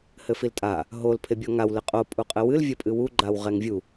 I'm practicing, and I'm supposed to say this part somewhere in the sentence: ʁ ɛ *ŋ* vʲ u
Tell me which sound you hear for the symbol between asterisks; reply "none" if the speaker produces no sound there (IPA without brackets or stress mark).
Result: ŋ